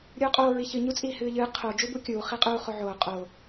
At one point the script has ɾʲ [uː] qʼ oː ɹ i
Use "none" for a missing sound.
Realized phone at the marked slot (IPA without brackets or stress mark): uː